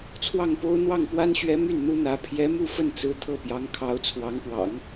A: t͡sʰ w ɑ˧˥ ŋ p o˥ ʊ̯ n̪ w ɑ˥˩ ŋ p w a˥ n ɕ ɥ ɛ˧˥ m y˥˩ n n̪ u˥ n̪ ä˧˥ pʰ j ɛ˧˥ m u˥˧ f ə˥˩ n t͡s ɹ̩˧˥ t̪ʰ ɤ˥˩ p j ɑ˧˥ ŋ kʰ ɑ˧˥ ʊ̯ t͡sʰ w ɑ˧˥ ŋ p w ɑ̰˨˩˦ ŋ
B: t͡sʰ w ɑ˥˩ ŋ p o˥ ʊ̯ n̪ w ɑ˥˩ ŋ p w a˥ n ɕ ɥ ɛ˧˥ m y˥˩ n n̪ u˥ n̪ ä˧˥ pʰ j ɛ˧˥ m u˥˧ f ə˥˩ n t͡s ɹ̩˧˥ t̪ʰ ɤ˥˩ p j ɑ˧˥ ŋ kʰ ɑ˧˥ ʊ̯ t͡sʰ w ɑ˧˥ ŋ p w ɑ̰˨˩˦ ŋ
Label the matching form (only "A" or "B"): B